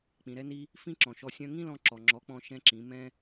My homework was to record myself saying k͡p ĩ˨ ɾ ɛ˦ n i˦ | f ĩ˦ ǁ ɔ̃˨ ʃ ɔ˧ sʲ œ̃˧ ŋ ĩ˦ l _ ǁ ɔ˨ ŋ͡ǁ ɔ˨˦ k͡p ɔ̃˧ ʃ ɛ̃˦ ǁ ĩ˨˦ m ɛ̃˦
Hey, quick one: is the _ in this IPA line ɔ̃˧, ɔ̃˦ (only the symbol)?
ɔ̃˧